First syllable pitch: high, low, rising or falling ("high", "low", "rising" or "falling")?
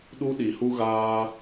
high